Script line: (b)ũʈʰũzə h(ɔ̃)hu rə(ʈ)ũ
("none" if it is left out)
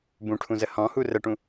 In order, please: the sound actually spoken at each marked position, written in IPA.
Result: b, ɔ̃, ʈ

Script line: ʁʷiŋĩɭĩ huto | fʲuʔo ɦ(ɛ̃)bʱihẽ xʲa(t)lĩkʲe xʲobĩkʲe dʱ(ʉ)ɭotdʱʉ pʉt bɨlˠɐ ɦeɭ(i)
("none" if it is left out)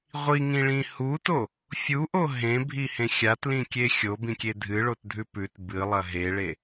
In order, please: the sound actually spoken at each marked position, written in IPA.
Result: ẽ, t, ɨ, e

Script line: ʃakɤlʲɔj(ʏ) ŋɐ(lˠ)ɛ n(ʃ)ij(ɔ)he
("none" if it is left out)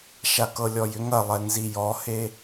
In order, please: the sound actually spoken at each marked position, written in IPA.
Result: ʏ, lˠ, z, ɔ

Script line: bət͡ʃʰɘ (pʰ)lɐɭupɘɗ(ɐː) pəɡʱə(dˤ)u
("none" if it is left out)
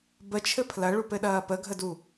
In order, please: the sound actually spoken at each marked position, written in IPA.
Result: pʰ, ɐː, d

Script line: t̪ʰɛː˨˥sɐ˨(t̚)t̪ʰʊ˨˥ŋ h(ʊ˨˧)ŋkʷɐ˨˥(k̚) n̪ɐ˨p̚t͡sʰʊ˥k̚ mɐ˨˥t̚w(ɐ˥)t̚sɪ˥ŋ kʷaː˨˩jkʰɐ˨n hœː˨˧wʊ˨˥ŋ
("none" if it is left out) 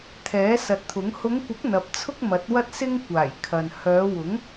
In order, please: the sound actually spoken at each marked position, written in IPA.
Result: t̚, ʊ˨˧, k̚, ɐ˥

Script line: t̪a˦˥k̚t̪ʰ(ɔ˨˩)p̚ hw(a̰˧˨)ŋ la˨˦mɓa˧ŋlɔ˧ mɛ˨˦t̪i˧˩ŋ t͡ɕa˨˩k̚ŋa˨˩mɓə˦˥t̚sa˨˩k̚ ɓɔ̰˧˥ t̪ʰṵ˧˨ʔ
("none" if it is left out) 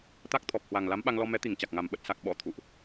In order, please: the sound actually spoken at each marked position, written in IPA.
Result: ɔ˨˩, a˨˩

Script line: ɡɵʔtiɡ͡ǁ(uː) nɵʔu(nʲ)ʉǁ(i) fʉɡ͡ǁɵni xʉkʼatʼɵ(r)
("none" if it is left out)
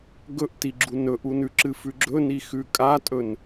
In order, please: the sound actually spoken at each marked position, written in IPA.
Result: u, n, ɨ, n

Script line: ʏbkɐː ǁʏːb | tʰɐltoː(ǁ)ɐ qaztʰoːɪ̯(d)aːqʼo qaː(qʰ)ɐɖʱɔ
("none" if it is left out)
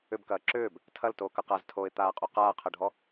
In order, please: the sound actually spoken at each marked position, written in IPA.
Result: k, t̪, qʰ

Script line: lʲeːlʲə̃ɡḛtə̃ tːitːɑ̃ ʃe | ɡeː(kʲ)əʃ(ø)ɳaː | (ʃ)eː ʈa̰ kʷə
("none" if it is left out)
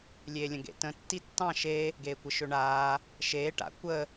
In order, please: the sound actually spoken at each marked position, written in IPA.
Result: kʷ, ø, ʃ

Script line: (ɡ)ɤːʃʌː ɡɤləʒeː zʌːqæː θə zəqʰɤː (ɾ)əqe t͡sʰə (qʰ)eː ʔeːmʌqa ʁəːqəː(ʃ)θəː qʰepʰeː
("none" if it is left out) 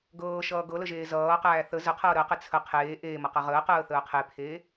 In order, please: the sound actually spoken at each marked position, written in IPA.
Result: ɡ, ɾ, qʰ, none

